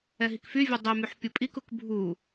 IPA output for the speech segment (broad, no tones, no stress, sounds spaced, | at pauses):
ɛ ɦ i k f y vʲ u dˤ y m y ħ pʲ u pʼ i k u k bʱ u